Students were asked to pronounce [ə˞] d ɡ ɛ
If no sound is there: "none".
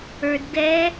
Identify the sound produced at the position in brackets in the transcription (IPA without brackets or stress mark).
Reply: ə˞